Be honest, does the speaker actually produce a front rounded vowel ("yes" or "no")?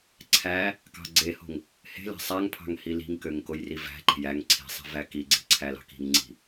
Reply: yes